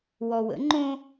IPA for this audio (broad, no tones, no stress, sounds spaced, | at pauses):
w ɔ w ə̰ ŋ͡ǃ õ